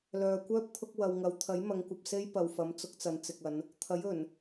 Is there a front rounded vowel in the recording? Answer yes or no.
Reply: yes